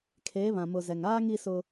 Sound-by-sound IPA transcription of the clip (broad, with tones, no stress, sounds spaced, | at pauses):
kʰ eː˨˦ β ã˨ m ʊ˨ z ɛ˨ ŋ aː˦ ŋ i˦ s ʊ˦